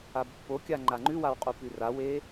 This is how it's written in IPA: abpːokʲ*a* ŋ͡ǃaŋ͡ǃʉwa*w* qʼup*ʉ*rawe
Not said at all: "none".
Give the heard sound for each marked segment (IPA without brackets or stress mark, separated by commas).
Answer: a, w, ʉ